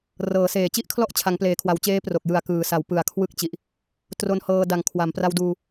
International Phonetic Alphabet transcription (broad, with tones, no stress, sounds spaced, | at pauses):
r ɤː˩˦ s eː˨˩ t͡ɕ i˥˩ ʔ kʰ l ɔ˥˩ ʔ t͡ɕʰ a˩˦ ŋ p l eː˩˦ kʰ w a˩˦ w t͡ɕ eː˦˥ p r o˨˩ k̚ j ɯ˨˩ a̯ k ɯː˩˦ s a˩˦ w p ɯ˩˦ a̯ kʰ w ɯ˦˥ k̚ t͡ɕ i˨˩ ʔ | t r o˧ n h ɤː˧ d a˨˩ ŋ kʰ w a˩˦ m p r a˧ w d uː˧